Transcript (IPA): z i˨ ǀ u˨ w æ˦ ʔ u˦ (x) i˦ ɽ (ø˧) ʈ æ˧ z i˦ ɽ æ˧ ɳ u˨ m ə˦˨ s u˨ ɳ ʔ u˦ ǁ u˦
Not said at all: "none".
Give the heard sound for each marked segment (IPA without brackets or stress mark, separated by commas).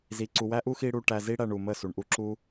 x, u˧